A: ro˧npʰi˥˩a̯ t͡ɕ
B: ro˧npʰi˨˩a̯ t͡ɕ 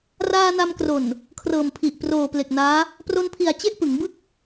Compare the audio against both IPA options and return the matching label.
B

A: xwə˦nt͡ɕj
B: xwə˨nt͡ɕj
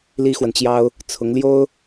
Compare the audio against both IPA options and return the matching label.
B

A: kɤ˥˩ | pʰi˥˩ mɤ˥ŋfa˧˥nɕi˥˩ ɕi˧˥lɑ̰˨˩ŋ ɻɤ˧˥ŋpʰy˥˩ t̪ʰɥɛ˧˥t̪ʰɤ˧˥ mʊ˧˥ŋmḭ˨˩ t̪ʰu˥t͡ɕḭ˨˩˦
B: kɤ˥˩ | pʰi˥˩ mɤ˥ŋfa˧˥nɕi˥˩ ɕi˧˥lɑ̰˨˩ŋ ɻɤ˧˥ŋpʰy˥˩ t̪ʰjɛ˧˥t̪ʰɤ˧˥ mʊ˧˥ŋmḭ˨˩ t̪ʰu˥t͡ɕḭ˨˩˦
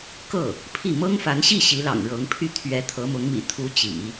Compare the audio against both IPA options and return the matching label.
A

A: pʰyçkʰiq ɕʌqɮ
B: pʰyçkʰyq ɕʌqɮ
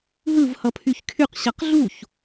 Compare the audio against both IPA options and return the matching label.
B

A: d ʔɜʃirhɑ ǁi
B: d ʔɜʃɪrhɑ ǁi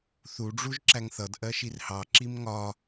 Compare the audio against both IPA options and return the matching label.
A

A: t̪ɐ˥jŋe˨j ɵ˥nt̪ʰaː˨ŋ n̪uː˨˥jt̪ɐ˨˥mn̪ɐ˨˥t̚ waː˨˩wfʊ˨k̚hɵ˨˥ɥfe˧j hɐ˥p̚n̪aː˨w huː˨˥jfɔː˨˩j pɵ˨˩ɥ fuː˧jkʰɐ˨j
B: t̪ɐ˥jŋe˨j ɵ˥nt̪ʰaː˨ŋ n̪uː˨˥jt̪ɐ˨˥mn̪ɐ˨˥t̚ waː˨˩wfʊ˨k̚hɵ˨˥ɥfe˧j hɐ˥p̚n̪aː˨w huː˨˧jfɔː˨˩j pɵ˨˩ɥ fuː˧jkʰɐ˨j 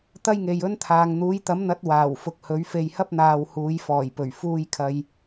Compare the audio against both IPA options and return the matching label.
B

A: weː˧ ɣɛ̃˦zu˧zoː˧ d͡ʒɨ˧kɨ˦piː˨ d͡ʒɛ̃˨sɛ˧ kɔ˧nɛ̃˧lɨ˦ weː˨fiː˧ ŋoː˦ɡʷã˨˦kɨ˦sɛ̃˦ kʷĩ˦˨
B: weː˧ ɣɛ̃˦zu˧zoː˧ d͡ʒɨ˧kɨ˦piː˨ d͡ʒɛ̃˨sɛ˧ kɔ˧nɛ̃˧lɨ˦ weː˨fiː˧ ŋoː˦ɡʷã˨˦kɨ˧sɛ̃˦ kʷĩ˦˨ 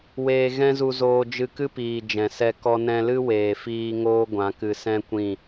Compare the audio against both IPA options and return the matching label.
B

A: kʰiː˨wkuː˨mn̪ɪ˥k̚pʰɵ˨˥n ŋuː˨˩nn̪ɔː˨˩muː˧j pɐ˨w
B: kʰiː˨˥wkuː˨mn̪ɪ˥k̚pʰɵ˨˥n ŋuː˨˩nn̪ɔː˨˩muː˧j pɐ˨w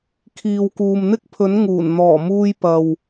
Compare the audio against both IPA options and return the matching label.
A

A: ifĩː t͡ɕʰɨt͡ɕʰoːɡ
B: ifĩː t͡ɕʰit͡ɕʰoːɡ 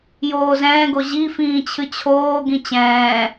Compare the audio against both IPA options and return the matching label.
A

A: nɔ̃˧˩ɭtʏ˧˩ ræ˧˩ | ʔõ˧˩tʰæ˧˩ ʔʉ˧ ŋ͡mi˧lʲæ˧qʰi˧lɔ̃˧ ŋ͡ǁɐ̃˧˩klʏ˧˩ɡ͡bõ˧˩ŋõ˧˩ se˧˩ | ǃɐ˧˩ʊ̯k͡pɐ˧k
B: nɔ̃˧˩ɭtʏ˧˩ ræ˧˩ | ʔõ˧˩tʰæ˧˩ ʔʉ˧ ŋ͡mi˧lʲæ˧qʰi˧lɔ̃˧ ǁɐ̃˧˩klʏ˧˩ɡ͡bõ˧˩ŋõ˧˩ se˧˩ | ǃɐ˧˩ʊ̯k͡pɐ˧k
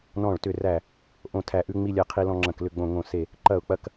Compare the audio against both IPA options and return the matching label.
A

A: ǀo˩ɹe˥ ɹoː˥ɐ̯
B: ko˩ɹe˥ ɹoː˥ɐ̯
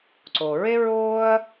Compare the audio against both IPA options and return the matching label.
A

